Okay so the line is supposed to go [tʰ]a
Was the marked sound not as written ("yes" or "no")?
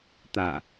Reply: yes